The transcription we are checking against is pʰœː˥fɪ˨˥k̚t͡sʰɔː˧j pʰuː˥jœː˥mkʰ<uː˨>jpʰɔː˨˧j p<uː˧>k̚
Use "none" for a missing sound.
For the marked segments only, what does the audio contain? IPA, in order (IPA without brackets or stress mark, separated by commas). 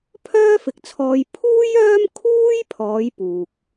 uː˥, uː˧